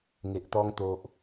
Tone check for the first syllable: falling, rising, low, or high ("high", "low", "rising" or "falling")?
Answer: low